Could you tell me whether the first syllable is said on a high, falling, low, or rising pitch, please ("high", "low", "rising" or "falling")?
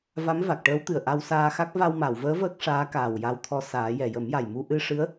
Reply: rising